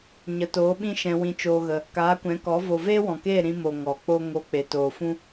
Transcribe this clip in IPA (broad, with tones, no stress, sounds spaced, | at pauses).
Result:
ɲ ə˨ t oː˨˦ ɓ ĩ˦ ʃ ɛ̃˧ w ĩ˧ t͡ʃ oː˧ ɣ ə˧ | k aː˨˦ kʷ ɛ̃˨˦ k ɔ˨˦ v o˨ v eː˦ w ɔ̃˨ k eː˦˨ ɾ ĩ˧ m o˨ ŋ ɔ˨ k͡p o˦ ŋ o˧ k͡p e˨ t oː˨ f ũ˦